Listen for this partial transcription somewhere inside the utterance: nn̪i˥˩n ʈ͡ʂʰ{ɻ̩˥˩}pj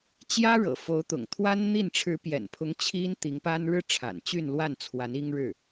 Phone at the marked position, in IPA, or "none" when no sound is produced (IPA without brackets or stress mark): ɻ̩˧˥